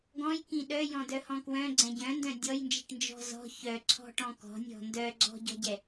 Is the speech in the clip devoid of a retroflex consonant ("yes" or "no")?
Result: no